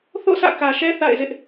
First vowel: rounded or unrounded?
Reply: rounded